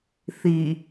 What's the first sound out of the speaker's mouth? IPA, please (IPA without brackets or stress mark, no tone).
θ